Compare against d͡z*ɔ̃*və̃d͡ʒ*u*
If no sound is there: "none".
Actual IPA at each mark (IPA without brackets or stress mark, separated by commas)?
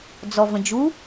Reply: ɔ, u